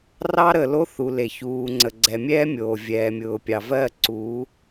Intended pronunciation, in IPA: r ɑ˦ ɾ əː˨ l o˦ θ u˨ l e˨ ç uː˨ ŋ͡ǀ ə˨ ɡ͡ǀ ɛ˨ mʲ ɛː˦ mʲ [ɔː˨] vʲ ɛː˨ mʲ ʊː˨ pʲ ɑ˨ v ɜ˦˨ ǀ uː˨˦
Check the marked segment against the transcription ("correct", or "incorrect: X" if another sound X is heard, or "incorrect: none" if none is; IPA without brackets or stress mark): incorrect: oː˨